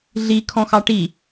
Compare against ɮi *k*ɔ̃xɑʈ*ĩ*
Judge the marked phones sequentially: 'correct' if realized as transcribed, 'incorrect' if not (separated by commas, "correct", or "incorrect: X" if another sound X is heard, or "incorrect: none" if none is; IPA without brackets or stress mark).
incorrect: kʰ, incorrect: i